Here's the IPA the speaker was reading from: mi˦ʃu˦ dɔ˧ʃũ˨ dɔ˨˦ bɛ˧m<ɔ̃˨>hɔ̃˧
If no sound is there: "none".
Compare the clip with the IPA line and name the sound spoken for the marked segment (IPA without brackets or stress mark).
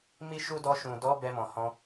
ɔ̃˨